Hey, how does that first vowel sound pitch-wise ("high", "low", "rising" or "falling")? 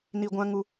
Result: low